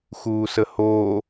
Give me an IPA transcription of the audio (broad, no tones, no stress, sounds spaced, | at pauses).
x uː s ə h oː